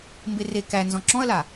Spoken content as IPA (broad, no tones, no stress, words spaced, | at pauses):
mbere kænzɔ̃ ǁɔ̃ɐ̯la